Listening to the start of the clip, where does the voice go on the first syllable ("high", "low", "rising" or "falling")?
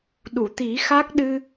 low